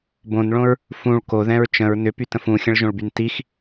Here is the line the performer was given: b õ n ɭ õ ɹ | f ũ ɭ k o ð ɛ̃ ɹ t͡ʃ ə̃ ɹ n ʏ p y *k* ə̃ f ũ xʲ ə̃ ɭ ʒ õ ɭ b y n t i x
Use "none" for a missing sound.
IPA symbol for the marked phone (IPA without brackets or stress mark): t